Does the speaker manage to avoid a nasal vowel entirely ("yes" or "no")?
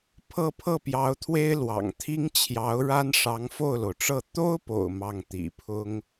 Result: yes